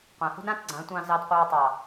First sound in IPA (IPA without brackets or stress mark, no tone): qʷ